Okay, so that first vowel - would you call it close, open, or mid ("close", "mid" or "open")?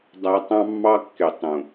open